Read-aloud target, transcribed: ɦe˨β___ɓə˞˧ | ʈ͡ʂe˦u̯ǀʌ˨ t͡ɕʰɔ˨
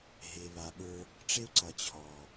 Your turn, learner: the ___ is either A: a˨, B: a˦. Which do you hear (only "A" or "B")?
A